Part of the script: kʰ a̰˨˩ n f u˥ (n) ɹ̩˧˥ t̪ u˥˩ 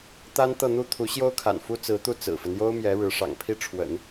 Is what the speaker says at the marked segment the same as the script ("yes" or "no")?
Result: no